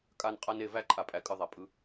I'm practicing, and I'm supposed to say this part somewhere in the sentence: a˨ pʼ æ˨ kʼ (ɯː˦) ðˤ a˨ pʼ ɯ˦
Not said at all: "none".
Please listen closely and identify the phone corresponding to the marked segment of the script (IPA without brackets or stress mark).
ɯ˦